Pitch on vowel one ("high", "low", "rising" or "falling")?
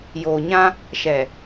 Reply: low